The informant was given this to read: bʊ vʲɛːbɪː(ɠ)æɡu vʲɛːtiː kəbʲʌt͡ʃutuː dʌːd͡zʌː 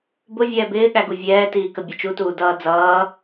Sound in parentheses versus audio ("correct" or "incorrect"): correct